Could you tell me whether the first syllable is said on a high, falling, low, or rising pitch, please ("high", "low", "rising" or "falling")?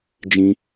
high